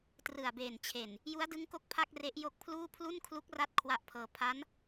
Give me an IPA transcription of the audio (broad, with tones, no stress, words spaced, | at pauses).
trɯ˨˩a̯beː˨˩nt͡ɕʰe˨˩n | ju˦˥a̯dɯ˦˥ŋko˦˥k̚ pʰa˥˩k̚re˦˥ʔjo˦˥k̚pʰluː˥˩ pʰlu˥˩nkʰlu˦˥k̚ra˦˥t̚ kʰwa˦˥ʔpʰɤː˧ pʰa˦˥n